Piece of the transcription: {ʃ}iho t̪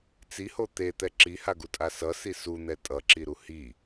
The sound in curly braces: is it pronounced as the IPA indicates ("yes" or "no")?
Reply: no